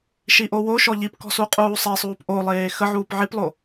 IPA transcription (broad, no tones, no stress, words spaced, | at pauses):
ʃiʔowoʃɔ ʎipkɔ̤ suqʼuːsˤesˤuːp ʔolˠeː xə ʕuːpʕiplˠo